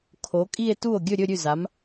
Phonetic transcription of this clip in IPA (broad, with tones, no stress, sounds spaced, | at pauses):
kʰ o˨˥ kʼ i˥˧ e̯ t u˥˩ o̯ ɡʲ ɵ˥˧ ɾʲ ɵ˥˧ ɾʲ ʉ˥˩ z a˨˥ m